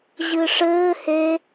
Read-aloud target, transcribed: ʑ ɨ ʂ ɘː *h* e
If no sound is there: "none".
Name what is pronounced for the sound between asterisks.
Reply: h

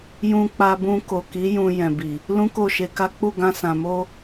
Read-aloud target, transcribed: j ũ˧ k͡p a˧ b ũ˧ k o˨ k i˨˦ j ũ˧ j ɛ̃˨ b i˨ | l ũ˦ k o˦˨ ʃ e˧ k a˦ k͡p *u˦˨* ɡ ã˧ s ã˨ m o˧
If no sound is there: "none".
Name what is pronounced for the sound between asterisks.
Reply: u˦˨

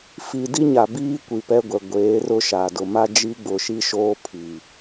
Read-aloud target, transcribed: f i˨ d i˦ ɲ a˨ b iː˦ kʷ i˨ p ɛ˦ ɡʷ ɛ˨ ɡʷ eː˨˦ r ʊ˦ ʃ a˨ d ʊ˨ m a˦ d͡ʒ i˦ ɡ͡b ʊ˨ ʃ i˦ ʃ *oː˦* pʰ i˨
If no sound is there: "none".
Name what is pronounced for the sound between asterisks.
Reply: oː˦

